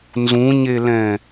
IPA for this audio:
n z ũ ɲ e l ɛ̃

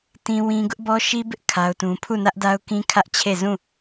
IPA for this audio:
t ĩ˦ w ĩ˦ ɡ ʊ˦ ʔ b ɔ˦ ʃ i˦ b ɪ˦ ʔ kʰ a˦ ʊ̯ t ũ˦ pʰ u˦˨ n ä˦ ʔ d a˦ ʊ̯ k ĩ˦ kʰ ä˦ ʔ t͡ɕʰ e˦˨ z ũ˦˨

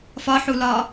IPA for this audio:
f ɒ ħ u l ɒ

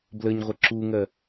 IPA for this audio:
b l ə ɲ ʁʷ ə ǁ u ŋ ɜ

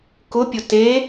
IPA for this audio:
k ʊ pʲ ʊ t e

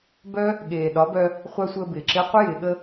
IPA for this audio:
b œ˦ | ɠ eː˨ ɗ ɒ˨˦ b œ˧ | χʷ a˦ sʷ əː˧ b ɪː˨ ǁ ɪː˦ qʷ ɪ˦ j ɪː˨ ɠ ə˧

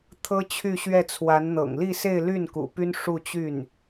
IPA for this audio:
t̪ʰ ɤ˥ t͡ɕʰ y˥˧ ɕ ɥ ɛ˥˩ t͡sʰ w a˧˥ n n̪ ɤ̰˨˩ ŋ l i˥˧ s e˥˧ ɪ̯ l y˥˩ n k ṵ˨˩ p y˥ n ʂ u˥˧ t͡ɕ y˥˩ n

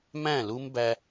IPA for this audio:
m æ̃˦˨ l u˦ m b æ˦

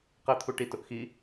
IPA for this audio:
q ɘ t̪ʰ u ʈ i t ʊ ʔ x i

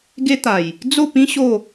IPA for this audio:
ɡ e˦ t̪ a˨˩ j | d͡z o˥˧ p ĩ˦ ɕ o˥˧

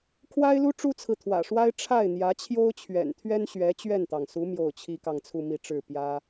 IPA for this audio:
kʰ w a˥ ɪ̯ l u˥ ʈ͡ʂ u˥ t͡sʰ ɹ̩˨ t̪ʰ w ä̰˨˩ ʂ w a˥ ɪ̯ ʈ͡ʂʰ a˥˩ ɪ̯ n̪ j ä˧˥ t͡ɕʰ j o˥ ʊ̯ t͡ɕʰ ɥ ɛ̰˨˩ n t̪ʰ ɥ ɛ˥ n ɕ ɥ ɛ˧˥ t͡ɕ ɥ ɛ˥˩ n t̪ ɑ˩ ŋ s u˧˥ m j o˥˩ ʊ̯ t͡ɕʰ i˥ k ɑ˥˧ ŋ t͡sʰ u˥˧ m i˥˧ ʈ͡ʂ ɻ̩˥˩ p j ä˥

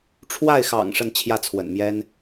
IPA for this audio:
ʈ͡ʂʰ w a˥˩ ɪ̯ x ɑ̰˨˩ ŋ ʂ ə˥˧ n t͡ɕʰ j ä˥˩ t͡sʰ w ə̰˨˩ n m j ɛ˥ n

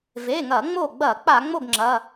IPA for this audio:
v e˩˧˩ ŋ ɐ˧˩˧ ŋ͡m o˧˩ ɡ͡b ɐ˧˩˧ k͡p a˧˩˧ ŋ͡m o˥˩ ɡ ŋ͡ǁ ɐ˩˧˩

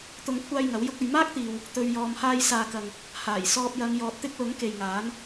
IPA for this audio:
t̪ ʊ˨˧ ŋ kʷʰ aː˧ j ŋ ɐ˨˥ w j ʊ˥ k̚ ɵ˨ ɥ m aː˥ k̚ t̪ iː˨ w | t̪ ɵ˨ ɥ j ɔː˨ m h aː˧ j s aː˨ k ɐ˨ ŋ | h aː˨˩ j s ɔː˧ p̚ j ɐ˨˧ ŋ j ɔː˨ t̚ t̪ ɪ˥ k̚ l ʊ˨˥ ŋ k e˨ j ŋ aː˨˥ n

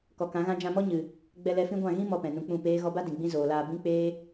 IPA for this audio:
k ɔ˨ k ã˨˦ ɣ ã˦ d͡ʒ ã˧ m ɔ˦ ɲ ɨ˨ | ɡ͡b ɛ˧ l ɛ˧ f ĩ˦ ɡʷ ã˦˨ ɣ ĩ˦ m ɔ˧ p ɛ̃˨ n ũ˧ k͡p ũ˦˨ p eː˦ ɣ ɔ˧ b a˦ d ĩ˨ ɡ͡b ĩ˦ z oː˨ l aː˧ b ĩ˦ k͡p eː˦

